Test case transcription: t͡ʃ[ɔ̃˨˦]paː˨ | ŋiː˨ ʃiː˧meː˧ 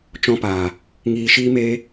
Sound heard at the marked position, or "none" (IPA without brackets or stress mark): ɔ̃˧